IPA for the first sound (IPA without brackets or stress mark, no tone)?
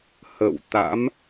h